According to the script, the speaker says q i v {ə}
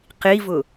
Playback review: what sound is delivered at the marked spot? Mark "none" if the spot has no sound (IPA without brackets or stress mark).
ʊ